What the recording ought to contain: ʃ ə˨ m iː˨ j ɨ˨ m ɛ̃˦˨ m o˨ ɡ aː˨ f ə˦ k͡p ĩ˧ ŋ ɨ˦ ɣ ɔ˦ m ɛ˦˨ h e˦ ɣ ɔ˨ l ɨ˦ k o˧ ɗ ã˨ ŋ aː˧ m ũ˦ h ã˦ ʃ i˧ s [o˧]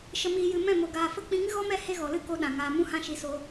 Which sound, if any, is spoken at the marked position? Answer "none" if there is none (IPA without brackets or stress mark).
o˧